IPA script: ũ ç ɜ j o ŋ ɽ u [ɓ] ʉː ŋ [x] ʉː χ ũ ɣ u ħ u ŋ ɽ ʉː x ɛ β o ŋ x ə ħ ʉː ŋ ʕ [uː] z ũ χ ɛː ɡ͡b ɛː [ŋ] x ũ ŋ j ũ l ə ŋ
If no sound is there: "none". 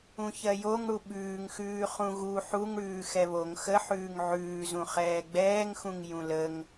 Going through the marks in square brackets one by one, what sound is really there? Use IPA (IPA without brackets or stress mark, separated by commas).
ɓ, x, ʉː, ŋ